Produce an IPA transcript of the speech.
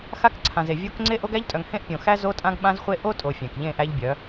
x a˦ k ǀʰ ã˨ z e˨ vʲ o˦ k ŋ͡ǀ e˦ ʔ o˦ ɡ æ˦ ʎ tʼ œ˨ ŋ h ẽ˦ ʔ pʲ õ˨ x æ˦ z o˦ tʼ ã˦ ɡ ɓ ã˦ z χʷ e˦ ʔ o˦ tʼ o˨ fʲ æ̃˨ k ʎ ẽ˦˨ ʔ æ˦ ʎ bʲ œ˨˦

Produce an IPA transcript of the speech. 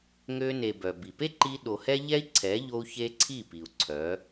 ŋ ø˧ n e˨ b œ˨ b i˨ p e˦ ǃ i˧ ɗ o˨ h ɛ˦ ʎ ɛ˦ i̯ ǀʰ ɛ˨˦ ʎ o˧ u̯ ç e˧ ǀʰ i˦˨ p i˨ u̯ ǀʰ œ˨˦

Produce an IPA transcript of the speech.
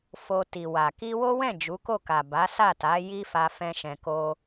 f o˧ t i˨ w a˨ k i˧ w o˦ w ɛ̃˦˨ d͡ʒ u˨˦ k o˦˨ k a˨ b a˨˦ s a˦˨ t a˨˦ j i˦ f a˧ f ɛ̃˧ ʃ ɛ̃˨ k o˧

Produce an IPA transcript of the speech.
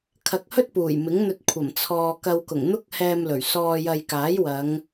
kʰ ɐ˨ k̚ h ɵ˥ t̚ p uː˨˩ j m ɪ˨˥ ŋ n̪ ɵ˧ t̚ kʷʰ ɐ˨˩ m t͡sʰ ɔː˨ k ɐ˧ w k ʊ˨˩ ŋ n̪ ʊ˥ k̚ h ɛː˧ m l ɵ˨˩ ɥ s ɔː˧ j ɐ˧ j k aː˨˥ j w ɐ˨˧ ŋ

